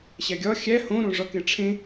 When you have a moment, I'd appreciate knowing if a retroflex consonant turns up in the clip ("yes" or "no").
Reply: yes